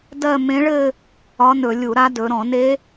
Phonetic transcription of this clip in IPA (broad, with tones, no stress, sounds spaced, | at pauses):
d ɜ˥˧ m ẽ˧˥ ɭ ɘ˥˧ | ɒ˧˥ n ɵ˧˩˧ lʲ u˧˩˧ ɾ a˧˥ d ɵ˩˧ ɾ ɔ̃˧˩˧ n e˧˥